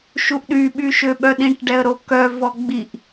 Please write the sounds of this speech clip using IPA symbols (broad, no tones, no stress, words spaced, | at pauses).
ʃuʔɗy ɓyʃøɓœɗĩʈ ɖɛə̯ɾokœ vɔɡ͡biʔ